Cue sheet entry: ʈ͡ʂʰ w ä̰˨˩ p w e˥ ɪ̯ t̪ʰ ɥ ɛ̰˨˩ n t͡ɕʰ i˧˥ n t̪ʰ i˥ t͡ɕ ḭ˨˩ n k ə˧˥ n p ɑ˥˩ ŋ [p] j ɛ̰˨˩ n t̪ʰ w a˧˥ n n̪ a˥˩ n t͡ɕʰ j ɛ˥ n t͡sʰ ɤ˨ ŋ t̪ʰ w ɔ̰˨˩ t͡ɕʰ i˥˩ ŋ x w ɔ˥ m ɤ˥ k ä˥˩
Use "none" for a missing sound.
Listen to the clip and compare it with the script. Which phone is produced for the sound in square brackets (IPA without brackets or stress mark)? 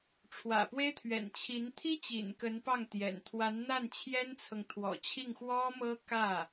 t̪